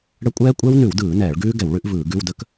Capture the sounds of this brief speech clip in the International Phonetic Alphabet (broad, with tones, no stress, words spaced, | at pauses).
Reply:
ɽə˦˥ kʷʼɛː˦˥kʷʼɛ˦˥wnʉ˧˩˧wdɯː˧˩˧ nɛː˧˩˧ɭɡʉː˦˥ɡɛ˧˩˧w ɭʉ˦˥ʔvɯː˧˩˧ɡʉ˧˥˧w də˦˥k